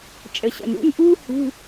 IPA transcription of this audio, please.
t͡ʃʼə˩ɕə̰˩nṵ˧˥˧nʔuː˥ hṳ˧˥˧

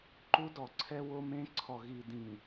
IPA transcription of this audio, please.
ǃu˦dɔ˨ǀʰɛ˦ wo˦mẽ˦ ǀʰɔ˨ɣi˨dĩ˨

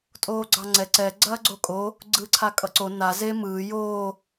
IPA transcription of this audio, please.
tʼoːɡ͡ǀɑŋ͡ǀɛ ǀɛ ɡ͡ǀɐːɡ͡ǀokʼo | ɡ͡ǀɯːǀʰakʼʌǀo na ze mɯː joː

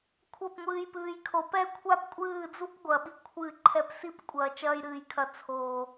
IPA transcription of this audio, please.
kʷʰɐ˦˨pŋʷɨː˧j pɨː˨jkʰo˨ pɛ˦kʷʰa˦pkʷʼɨː˦˨d͡zu˦p ɡʷɐ˨ɓi˧ kʷʰɨ˦˨ ǃʰɛ˧psi˦p kʷʼɐː˧t͡ʃɐː˦jɾɨː˧jkʰɐ˧ t͡sʰoː˨

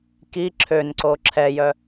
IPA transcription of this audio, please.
ki ǁʰønǀo ǁʰɛjœ

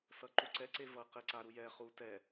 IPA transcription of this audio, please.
sʌǃuǀɛ ǀevʌ qeǀa ɾujɛ χu tɛ

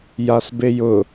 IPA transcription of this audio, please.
jasbejʊ

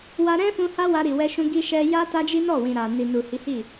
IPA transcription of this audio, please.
wa˧ɾɛ̃˦fũ˧ ha˦wa˧ ɾi˨wɛ˧ʃũ˧ ɡi˧ʃɛ˧ja˦ ta˦d͡ʒi˦ nɔ˦˨wĩ˨ ɾa˨ni˨nu˨ hi˨˦hi˦˨

